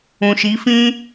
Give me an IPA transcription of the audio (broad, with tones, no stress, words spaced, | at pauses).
ũ˨ʃi˨˦fĩ˦